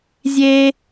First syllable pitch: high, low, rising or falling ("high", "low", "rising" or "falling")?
high